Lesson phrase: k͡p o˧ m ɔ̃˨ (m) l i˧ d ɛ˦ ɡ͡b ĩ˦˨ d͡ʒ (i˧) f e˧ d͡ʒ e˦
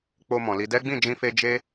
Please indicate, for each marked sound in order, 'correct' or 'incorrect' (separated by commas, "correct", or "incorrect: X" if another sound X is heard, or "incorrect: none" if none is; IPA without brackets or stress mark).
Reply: incorrect: none, incorrect: ĩ˧